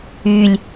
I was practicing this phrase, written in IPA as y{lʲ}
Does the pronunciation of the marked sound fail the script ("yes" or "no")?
no